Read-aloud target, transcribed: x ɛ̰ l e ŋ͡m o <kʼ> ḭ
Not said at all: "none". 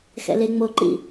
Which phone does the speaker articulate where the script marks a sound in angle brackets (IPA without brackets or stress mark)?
ǃ